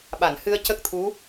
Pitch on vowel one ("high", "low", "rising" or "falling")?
low